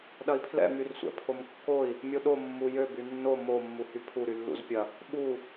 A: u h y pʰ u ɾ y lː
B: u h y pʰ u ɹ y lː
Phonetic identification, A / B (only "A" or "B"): A